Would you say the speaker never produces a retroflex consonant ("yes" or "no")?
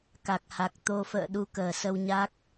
yes